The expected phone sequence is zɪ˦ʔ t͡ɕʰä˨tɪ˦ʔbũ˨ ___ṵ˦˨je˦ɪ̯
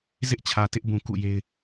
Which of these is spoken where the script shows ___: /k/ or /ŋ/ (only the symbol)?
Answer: k